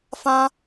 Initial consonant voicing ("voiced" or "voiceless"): voiceless